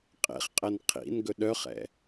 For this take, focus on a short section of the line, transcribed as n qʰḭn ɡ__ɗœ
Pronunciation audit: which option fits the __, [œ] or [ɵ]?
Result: ɵ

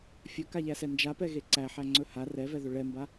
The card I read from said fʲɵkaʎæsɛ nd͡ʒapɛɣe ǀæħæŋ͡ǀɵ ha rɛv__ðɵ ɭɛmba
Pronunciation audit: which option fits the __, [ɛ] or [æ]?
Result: ɛ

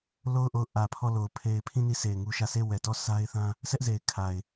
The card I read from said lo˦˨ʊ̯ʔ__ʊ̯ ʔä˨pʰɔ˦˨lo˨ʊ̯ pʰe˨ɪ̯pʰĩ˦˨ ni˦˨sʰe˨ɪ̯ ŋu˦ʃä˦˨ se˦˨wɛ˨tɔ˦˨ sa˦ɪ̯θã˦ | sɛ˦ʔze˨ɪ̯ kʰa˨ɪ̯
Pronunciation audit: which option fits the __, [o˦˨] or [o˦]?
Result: o˦˨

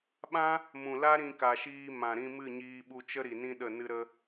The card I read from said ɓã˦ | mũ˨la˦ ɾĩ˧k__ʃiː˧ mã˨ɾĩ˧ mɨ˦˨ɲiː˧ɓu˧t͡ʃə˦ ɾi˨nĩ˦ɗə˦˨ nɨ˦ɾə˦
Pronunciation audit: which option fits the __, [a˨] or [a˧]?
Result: a˨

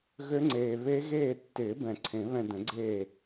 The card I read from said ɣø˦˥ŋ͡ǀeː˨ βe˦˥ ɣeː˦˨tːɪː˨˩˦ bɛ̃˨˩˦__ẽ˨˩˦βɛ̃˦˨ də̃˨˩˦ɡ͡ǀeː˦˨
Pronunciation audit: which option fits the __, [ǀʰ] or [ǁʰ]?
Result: ǀʰ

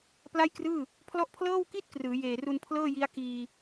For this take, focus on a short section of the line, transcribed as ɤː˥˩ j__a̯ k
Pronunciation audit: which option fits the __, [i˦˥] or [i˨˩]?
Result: i˦˥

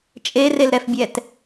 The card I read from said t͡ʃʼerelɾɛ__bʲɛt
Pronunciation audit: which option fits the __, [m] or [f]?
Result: f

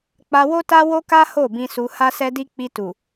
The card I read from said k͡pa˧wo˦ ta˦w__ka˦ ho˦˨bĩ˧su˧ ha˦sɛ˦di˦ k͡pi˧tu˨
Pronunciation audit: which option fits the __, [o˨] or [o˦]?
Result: o˦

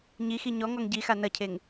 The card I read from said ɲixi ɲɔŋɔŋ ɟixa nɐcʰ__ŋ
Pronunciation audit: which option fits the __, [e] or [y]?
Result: e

